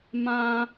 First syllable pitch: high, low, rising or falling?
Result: high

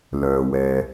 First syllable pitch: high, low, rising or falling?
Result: low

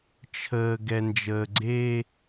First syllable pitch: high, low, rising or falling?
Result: low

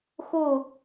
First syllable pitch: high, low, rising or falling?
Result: falling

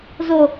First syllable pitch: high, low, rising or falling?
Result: low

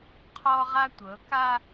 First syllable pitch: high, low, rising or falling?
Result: high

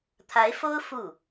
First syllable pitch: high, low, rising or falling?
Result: rising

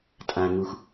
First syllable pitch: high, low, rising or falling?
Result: low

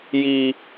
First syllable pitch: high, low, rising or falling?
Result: low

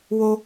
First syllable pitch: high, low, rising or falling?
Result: high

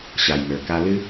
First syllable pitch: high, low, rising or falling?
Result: low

